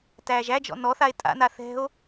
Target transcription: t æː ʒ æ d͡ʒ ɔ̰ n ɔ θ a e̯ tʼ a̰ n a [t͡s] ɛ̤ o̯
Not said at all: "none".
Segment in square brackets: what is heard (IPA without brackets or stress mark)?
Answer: θ